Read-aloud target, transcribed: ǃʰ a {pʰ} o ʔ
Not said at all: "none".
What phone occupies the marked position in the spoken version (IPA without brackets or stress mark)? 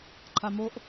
m